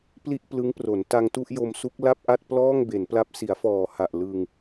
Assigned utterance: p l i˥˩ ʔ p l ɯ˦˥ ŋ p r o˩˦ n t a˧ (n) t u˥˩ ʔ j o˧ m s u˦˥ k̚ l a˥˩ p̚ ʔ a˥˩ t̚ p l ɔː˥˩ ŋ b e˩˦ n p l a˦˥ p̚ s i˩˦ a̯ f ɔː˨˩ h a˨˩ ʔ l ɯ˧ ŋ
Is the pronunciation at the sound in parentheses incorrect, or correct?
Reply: incorrect